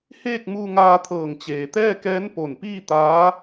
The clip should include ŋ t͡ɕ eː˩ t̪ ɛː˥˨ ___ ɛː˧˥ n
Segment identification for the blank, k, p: k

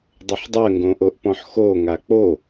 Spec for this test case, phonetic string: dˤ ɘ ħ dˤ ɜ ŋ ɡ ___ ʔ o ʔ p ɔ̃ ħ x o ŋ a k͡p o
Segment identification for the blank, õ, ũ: õ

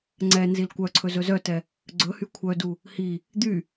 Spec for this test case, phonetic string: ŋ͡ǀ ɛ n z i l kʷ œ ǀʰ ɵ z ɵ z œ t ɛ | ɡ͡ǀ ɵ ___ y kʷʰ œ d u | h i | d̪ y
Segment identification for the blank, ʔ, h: h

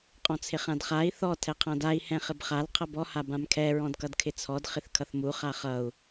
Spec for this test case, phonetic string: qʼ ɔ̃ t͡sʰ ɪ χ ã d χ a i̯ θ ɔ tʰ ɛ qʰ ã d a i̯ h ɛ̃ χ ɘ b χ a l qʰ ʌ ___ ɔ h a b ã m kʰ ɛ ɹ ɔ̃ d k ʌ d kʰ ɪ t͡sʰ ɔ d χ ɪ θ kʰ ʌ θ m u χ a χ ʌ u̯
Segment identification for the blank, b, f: b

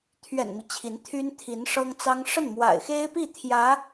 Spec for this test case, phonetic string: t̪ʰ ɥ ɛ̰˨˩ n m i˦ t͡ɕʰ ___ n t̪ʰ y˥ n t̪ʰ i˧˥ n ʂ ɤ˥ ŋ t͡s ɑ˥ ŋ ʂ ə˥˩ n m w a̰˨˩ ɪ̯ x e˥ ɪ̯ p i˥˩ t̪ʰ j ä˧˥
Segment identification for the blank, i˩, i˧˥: i˧˥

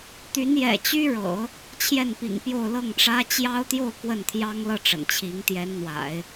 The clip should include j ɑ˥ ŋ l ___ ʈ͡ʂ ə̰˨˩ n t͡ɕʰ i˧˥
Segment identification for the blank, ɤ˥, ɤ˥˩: ɤ˥˩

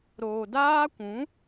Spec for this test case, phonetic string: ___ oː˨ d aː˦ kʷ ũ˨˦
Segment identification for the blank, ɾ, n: ɾ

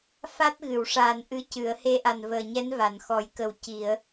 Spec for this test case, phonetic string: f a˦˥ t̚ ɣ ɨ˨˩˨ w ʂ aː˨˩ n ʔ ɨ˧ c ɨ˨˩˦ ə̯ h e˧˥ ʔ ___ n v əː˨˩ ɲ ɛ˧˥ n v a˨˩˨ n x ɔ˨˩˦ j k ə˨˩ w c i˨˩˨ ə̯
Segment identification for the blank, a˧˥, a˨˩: a˨˩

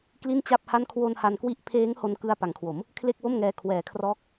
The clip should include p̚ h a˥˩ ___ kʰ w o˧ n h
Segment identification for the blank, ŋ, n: n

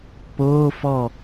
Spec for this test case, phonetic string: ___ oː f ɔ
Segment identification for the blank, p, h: p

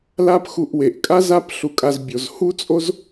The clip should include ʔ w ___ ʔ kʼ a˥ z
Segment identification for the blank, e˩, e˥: e˩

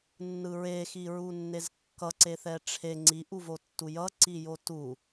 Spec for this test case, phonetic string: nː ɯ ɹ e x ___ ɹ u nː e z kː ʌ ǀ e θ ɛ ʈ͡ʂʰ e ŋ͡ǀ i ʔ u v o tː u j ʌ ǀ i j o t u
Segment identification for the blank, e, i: i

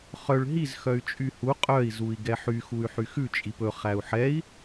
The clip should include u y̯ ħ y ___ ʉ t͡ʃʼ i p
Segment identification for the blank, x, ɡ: x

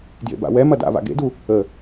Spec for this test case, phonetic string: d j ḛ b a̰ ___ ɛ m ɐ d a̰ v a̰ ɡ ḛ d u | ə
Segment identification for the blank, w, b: w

